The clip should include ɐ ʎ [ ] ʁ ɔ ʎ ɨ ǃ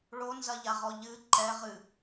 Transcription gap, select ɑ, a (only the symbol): a